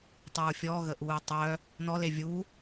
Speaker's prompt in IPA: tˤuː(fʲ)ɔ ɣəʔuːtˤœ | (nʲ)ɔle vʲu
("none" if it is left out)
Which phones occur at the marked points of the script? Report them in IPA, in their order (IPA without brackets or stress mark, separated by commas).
fʲ, n